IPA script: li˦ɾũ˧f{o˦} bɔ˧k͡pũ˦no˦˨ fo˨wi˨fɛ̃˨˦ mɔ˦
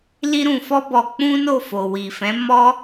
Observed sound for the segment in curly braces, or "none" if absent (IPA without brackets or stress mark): ɔ˦